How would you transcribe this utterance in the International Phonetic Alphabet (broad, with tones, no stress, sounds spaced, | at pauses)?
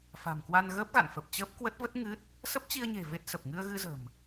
f a̤˨˩ m k w a˧ n ɣ əː˦˥ p̚ ɣ a̰˧˨ n f ə˨˩ p̚ t͡ɕ əː˦˥ p̚ k w ə˦˥ t̚ v ə˦˥ t̚ ŋ ɨ˦˥ t̚ | s ə˦˥ p̚ t͡ɕ i˧ ə̯ ɲ e̤˨˩ v e˦˥ t̚ s ə˨˩ p̚ ŋ ɨ˧ ə̯ ɣ ɨ˧ z ə̤˨˩ m